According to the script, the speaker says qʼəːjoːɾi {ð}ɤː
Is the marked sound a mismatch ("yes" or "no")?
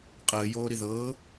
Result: no